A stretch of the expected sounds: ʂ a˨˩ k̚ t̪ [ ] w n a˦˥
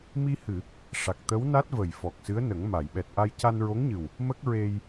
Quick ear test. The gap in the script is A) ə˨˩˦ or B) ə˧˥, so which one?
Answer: B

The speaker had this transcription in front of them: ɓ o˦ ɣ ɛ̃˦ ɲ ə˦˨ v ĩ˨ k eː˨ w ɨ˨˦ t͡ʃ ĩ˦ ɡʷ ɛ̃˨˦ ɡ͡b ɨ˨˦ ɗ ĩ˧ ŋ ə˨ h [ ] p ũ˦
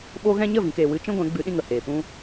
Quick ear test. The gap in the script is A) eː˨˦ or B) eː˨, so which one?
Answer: B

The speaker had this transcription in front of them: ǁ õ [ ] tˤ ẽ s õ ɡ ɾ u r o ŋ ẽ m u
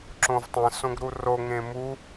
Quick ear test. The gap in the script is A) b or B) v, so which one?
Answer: B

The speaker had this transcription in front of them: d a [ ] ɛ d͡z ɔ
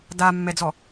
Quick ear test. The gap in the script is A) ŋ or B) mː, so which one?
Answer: B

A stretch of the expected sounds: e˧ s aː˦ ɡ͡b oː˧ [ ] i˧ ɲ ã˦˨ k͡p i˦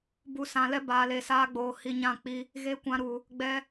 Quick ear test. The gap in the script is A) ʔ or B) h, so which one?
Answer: B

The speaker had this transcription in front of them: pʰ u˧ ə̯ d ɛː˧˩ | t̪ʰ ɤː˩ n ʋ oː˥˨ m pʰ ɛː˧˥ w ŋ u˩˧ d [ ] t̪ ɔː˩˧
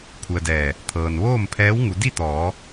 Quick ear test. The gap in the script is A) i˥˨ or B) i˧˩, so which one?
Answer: A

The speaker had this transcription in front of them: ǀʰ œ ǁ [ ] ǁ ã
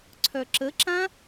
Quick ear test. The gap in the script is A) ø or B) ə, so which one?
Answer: B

